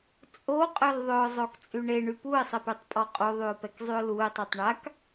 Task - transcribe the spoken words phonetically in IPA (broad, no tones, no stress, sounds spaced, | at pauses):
t͡sʼ o qʼ œ l ðˤ ø ʊ̯ zˤ o k t͡sʼ y ɳ e ɳ y p u ɪ̯ sˤ ə p y tˤ pʼ ɔ qʼ o ðˤ y ʊ̯ p ɛ k zˤ y ʊ̯ l u ɪ̯ tˤ y tˤ ɳ a k